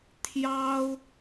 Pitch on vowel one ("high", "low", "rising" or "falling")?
high